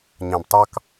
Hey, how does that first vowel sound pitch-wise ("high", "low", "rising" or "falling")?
low